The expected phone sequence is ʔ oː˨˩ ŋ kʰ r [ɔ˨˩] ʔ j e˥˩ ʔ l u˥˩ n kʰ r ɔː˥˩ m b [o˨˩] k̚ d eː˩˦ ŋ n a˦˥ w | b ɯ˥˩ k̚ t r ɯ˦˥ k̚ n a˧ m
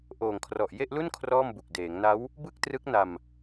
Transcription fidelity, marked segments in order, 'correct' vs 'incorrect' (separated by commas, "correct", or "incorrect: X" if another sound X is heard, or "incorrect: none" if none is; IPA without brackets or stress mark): correct, incorrect: u˨˩